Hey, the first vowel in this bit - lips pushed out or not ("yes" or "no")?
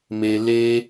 no